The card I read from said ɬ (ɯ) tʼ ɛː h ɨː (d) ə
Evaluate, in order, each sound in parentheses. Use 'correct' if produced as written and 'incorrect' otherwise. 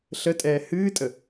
incorrect, incorrect

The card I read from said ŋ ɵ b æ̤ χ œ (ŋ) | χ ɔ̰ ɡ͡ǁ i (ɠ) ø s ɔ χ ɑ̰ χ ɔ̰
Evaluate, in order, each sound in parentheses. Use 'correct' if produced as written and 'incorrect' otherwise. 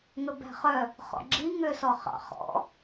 incorrect, incorrect

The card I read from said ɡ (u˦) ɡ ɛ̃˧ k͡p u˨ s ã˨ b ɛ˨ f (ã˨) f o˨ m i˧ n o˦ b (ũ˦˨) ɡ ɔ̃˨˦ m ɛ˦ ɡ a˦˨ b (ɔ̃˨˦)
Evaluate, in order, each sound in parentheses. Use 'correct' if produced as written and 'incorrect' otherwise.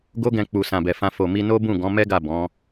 incorrect, incorrect, correct, correct

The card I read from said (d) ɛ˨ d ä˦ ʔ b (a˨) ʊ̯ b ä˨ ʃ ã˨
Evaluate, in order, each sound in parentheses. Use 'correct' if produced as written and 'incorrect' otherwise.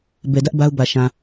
incorrect, incorrect

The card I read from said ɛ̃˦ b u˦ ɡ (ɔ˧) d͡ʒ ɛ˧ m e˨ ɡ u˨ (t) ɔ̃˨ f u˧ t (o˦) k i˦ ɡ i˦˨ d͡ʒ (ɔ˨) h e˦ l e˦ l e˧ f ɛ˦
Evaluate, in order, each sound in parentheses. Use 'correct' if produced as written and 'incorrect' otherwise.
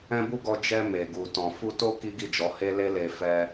correct, correct, correct, incorrect

